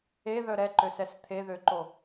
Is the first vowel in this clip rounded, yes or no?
no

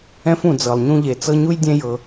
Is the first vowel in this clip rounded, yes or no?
no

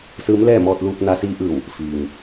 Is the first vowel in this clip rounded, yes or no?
no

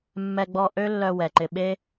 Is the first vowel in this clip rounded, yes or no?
no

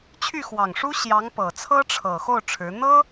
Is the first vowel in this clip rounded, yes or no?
yes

